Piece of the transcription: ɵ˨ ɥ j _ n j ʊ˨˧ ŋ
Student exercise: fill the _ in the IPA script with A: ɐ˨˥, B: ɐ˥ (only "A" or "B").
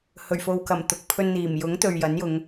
A